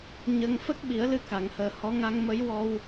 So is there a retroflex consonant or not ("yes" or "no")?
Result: no